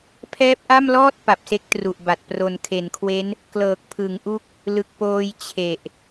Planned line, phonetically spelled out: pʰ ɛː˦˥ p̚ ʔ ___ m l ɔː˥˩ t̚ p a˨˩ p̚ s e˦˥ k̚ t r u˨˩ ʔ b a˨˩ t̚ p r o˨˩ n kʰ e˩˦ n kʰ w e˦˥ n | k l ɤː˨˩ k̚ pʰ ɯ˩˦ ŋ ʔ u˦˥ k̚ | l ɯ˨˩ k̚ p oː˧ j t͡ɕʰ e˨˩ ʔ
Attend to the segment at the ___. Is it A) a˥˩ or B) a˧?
A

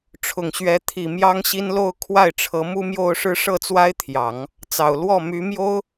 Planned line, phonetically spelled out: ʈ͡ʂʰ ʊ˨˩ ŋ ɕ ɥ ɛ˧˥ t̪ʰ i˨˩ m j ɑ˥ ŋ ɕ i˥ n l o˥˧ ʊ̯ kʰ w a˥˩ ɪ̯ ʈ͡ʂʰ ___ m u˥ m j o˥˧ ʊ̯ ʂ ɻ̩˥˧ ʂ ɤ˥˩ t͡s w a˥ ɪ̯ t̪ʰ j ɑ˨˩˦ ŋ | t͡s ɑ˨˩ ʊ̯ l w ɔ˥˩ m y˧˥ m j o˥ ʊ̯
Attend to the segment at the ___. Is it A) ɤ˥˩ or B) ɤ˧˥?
B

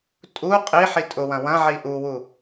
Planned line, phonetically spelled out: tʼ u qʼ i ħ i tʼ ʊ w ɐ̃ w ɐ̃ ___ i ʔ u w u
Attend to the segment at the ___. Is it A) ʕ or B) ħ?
A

